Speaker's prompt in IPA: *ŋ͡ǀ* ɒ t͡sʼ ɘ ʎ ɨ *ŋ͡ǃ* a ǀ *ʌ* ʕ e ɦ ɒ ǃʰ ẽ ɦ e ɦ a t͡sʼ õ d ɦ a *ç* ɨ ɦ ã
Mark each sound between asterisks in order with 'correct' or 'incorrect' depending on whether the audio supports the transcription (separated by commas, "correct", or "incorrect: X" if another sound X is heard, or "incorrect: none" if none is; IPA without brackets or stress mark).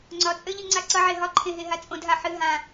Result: correct, incorrect: ŋ͡ǀ, correct, incorrect: ħ